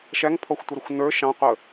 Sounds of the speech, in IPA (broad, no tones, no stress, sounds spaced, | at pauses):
ʃ æ ŋ pʰ ɔ xʷ tʷ ɪ ɾ ə xʷ n ə˞ ʃ ɑ̃ qʷ ə